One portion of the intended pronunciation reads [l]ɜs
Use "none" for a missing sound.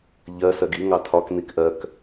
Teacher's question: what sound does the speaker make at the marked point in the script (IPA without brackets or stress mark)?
ʎ